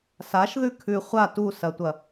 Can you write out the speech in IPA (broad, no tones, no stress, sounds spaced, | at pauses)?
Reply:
s a ʃ ð ʉ kʰ ʉ χʷ a t u s ɐ tʷ ɐ